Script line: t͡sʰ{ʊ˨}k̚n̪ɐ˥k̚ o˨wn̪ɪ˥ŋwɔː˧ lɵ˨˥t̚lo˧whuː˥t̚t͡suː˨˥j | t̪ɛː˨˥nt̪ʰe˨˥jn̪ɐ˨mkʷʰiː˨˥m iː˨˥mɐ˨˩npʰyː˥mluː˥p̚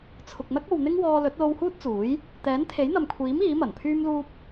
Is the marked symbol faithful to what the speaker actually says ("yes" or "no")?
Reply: yes